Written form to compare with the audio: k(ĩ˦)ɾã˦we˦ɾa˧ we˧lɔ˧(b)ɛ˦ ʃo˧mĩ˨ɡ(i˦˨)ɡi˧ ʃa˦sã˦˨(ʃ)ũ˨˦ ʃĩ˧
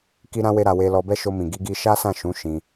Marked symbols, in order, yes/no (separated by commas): no, yes, no, yes